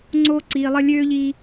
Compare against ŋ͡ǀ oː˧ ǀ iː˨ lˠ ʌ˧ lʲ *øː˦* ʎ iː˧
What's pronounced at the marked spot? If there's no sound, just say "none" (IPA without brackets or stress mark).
øː˦